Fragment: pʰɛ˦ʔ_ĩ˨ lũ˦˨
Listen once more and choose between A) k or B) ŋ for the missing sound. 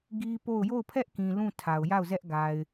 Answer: A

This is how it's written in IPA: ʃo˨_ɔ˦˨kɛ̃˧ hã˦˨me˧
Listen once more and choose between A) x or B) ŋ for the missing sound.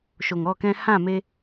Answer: B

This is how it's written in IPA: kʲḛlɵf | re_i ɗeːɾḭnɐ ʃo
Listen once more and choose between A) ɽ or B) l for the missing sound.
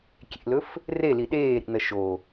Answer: B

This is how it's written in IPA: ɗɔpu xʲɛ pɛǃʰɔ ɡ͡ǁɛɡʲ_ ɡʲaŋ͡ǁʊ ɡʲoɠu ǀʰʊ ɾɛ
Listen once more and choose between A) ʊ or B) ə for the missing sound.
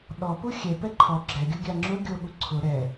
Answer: A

